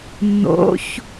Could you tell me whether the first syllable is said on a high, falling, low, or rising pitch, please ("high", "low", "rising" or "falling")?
rising